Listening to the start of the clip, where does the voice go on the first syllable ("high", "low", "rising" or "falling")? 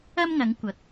high